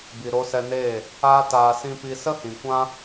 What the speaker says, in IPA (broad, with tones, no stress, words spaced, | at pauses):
bi˨ɾo˧sɛ˧neː˦˨ | aː˦taː˧ sĩ˧ pi˧sə˦hĩ˨kʷã˦